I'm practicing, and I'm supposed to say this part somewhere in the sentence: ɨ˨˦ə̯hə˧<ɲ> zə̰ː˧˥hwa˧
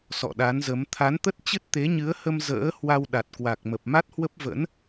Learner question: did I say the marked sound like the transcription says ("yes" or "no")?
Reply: no